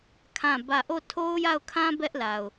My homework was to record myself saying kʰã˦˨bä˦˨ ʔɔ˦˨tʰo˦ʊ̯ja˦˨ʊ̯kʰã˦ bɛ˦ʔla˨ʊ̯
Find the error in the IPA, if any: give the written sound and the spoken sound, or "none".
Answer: ɔ˦˨ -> o˦˨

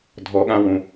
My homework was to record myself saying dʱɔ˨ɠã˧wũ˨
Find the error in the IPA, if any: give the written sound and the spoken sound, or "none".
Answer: none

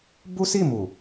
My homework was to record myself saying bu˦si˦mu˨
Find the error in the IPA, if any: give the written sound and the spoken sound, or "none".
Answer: i˦ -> i˦˨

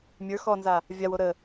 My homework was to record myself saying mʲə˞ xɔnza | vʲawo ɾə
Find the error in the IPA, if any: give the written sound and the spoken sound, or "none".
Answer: none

